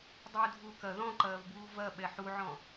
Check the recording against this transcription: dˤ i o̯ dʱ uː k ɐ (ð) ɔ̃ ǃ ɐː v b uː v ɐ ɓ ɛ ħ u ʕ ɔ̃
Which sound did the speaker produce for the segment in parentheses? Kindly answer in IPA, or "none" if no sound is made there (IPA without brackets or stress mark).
ð